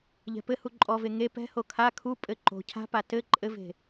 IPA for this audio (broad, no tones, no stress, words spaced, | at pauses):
ʎɛ̤pɘhu ǃʼɔve ŋe pɛ̤ho kʰa kʰu pʼɘ ǃo̤ cʰa̤pa tɘ ǃʼɘve̤